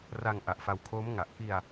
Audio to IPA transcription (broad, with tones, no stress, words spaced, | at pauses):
ra˧ŋ ʔa˨˩ʔfa˧wkʰoː˦˥m ŋa˨˩ʔ ki˧a̯